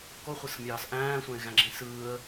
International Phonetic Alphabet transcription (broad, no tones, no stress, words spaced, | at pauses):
koχʷɯsmʲɑːs ʔæ̃ːsʷæ̃ɪ̯ɣæ̃ɡ͡ǁĩ sɯːə̯